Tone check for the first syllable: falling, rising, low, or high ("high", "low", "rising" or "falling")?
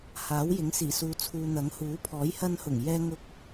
rising